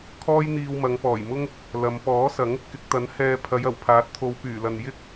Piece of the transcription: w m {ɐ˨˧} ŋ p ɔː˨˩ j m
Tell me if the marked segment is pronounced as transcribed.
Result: yes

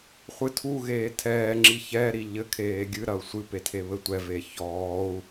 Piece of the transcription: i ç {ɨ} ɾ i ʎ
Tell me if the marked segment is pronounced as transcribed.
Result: no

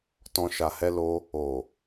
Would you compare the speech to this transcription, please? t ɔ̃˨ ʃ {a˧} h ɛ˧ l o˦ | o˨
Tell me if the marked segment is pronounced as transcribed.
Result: no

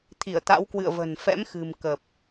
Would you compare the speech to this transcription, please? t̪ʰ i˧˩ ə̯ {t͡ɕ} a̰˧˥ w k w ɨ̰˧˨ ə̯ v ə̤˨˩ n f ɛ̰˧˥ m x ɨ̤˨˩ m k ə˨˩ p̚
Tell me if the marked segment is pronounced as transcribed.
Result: no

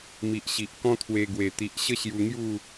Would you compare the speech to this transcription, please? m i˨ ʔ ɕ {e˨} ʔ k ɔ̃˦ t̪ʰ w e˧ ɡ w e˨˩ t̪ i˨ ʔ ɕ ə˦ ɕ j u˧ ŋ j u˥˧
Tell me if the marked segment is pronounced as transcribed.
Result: no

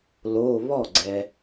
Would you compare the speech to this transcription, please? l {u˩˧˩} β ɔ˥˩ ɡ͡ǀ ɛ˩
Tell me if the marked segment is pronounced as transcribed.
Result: no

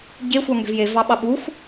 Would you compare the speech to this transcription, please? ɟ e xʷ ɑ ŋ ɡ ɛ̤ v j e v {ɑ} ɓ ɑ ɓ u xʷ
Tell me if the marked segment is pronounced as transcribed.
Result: yes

